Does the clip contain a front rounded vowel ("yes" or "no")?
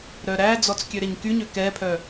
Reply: yes